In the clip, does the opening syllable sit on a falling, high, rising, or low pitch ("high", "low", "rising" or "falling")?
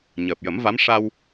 low